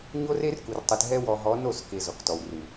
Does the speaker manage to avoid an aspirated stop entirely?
yes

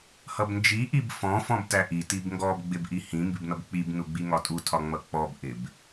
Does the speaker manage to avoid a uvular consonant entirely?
yes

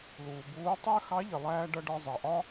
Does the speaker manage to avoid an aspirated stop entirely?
yes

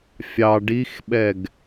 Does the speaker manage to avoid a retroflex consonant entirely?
no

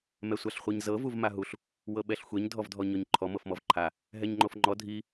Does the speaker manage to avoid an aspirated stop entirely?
no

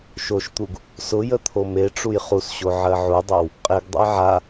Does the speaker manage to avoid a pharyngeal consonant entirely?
no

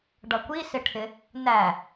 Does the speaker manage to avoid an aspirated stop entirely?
no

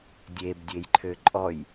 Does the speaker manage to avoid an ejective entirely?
no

